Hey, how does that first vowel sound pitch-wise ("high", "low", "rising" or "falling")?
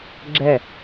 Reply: falling